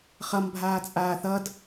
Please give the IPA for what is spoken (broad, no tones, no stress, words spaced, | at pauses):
χʌmbʱaːt͡sʼaː θʌd